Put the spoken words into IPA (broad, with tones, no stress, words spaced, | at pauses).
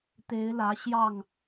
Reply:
t̪e˨˦ɪ̯lä˨˦ɕjɑ˥˨ŋ